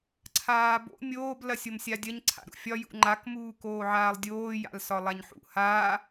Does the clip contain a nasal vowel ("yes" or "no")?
no